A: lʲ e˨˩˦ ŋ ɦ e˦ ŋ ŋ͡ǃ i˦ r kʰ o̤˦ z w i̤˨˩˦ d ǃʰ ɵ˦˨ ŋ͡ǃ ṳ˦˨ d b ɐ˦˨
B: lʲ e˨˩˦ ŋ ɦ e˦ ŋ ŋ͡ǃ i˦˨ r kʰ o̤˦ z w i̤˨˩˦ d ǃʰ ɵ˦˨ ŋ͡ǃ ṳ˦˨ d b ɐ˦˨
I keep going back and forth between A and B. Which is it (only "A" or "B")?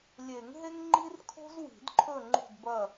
A